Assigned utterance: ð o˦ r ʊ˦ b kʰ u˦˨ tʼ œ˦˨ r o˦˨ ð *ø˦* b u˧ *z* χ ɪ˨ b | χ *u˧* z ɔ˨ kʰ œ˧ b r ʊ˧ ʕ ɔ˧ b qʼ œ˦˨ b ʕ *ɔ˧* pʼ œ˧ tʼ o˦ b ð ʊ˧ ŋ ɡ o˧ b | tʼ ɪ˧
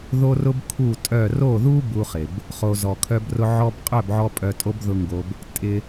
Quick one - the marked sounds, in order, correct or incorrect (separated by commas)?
incorrect, incorrect, incorrect, correct